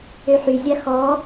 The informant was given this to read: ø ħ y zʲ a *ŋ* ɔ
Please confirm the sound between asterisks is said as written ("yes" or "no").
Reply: no